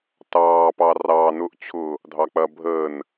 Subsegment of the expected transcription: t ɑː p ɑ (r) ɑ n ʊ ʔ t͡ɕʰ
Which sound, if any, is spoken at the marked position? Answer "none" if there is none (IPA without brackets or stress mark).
r